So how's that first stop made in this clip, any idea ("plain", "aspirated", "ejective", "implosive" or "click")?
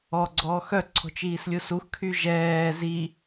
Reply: click